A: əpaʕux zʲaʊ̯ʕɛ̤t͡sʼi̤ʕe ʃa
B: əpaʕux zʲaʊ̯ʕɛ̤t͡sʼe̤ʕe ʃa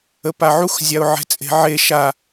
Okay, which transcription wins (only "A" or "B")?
B